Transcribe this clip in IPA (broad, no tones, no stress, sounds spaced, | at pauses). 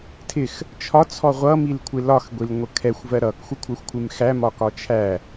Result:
tʰ ɪ x | t͡ʃʰ ɒ t͡sʰ ɔ ʁʷ ʌ m i l kʷʰ ɪ l ɒ x ɡʷ i l ŋʷ ə kʰ ɛ xʷ v ɜ ɾ ʌ k xʷ ɪ kʷʰ ɜ xʷ kʷʰ ɪ m x æ m ɒ k ɒ t͡ʃʰ æ